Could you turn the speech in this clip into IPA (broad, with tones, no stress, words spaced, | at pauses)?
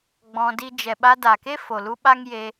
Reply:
ɡ͡bɔ̃˧ di˧d͡ʒɛ˨ɓa˧ da˨ke˦fo˨lu˧ ɓa˦ŋje˧